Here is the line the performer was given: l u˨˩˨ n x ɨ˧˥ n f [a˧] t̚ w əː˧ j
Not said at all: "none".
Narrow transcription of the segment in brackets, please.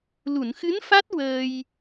a˦˥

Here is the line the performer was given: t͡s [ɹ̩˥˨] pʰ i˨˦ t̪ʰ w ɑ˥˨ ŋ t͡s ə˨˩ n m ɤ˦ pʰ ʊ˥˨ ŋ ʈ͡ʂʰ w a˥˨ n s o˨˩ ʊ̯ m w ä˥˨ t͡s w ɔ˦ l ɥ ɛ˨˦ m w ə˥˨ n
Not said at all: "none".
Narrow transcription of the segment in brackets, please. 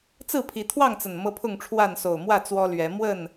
ɹ̩˥˨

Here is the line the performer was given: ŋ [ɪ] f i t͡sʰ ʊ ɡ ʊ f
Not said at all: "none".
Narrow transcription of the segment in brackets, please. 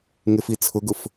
ɪ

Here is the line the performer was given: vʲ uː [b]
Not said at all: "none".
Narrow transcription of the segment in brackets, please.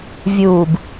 b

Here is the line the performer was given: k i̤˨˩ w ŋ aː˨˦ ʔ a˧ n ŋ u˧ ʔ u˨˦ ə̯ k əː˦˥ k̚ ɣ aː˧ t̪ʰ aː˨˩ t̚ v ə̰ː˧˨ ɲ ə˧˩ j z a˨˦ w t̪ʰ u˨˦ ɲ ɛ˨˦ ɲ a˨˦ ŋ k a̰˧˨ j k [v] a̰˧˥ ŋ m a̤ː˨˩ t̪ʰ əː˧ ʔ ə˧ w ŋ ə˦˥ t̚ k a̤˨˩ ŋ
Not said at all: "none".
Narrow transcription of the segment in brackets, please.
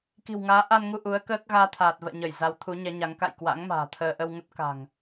w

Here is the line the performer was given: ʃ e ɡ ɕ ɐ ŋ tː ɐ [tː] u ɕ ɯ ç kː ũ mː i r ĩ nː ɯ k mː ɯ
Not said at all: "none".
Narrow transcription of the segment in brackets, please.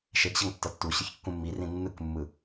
tː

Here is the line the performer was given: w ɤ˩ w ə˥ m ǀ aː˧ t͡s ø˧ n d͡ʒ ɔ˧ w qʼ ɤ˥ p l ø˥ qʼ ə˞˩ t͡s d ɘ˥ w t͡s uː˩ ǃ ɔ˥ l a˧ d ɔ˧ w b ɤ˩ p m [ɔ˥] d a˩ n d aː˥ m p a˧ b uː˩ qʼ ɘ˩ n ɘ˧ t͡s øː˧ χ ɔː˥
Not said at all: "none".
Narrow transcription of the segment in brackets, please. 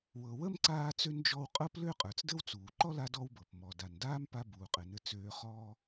ɔ˩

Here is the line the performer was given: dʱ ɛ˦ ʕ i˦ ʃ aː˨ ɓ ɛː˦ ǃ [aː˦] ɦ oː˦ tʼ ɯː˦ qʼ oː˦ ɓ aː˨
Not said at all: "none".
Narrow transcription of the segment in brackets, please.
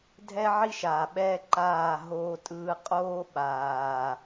aː˦˨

